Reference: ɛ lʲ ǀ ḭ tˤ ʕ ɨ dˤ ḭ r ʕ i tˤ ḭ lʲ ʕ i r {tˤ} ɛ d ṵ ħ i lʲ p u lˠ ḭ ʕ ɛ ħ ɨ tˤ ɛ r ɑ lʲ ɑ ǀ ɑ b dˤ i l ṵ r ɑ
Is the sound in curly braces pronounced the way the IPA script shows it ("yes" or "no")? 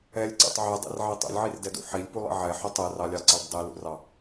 no